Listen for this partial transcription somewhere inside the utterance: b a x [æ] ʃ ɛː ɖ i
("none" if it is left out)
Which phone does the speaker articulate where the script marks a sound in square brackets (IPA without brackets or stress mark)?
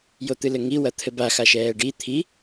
a